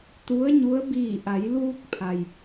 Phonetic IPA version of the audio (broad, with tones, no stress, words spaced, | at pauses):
t̪u˧˥ə̯ɲu˧˥ə̯ biː˧˩ʔa˩˧jluː˧k̚pʰa˩j